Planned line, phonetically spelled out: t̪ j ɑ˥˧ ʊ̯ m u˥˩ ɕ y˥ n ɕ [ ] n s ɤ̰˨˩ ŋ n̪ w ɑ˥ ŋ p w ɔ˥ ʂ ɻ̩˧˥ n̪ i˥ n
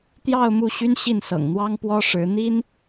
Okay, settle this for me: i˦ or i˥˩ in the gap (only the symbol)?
i˥˩